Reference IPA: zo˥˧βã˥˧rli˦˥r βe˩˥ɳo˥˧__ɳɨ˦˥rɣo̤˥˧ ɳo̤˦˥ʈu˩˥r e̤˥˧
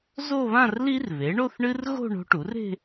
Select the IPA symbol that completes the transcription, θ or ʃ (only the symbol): θ